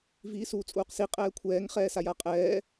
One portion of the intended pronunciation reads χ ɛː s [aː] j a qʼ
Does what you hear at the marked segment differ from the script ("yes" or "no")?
yes